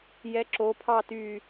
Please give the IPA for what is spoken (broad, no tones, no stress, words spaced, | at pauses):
jɛǁo pʰɑty